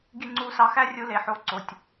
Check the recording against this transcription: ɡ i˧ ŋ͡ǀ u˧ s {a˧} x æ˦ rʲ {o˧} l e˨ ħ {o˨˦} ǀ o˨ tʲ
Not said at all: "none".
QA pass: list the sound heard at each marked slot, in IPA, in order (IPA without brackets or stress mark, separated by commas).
ɑ˧, u˧, o˨˦